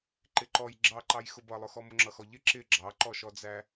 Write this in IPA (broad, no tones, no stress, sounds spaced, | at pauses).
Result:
ǃ ɪ ǃ ɔ j ɡ͡ǁ ɑ ǃ ɑ j x ʊ b ʌ lˠ ʊ x ɔ m ʊ ŋ͡ǁ ʌ x ɔ ʎ ɪ ǁ ɪ ɡ͡ǁ ɑ ǃ ɔ ʃ ɔ d͡z æ